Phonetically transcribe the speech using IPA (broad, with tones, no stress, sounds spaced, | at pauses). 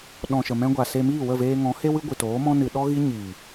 ɗ ɔ̃˨ ʃ ə˨ m ɛ̃˧ ɡʷ a˨ s e˧ m iː˦˨ w ə˦˨ v eː˧ ŋ ɔ̃˨˦ h e˦ w ɨ˦ ɡʷ ɨ˨ t oː˨˦ m ɔ̃˦ n ɨ˧ ɗ ɔ˦ ɣ i˦ ɲ iː˨